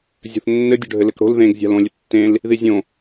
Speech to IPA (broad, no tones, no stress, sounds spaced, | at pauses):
zʲ o̤ θ nː ɘ dʲ o ɖʱ ɘ l ɘ k ɽ o̤ l ð ẽ ɡ zʲ a̤ l õ lʲ ɘ tː ẽ l | ð i zʲ õ